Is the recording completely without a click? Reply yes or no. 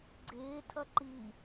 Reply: no